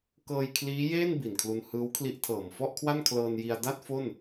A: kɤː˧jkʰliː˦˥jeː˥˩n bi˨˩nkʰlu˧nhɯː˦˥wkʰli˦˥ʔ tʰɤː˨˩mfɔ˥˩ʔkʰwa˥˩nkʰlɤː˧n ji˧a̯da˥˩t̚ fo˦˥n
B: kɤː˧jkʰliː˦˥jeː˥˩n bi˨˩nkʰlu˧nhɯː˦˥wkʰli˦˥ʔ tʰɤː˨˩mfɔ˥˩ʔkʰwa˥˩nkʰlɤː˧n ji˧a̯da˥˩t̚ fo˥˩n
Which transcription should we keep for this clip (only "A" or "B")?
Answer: B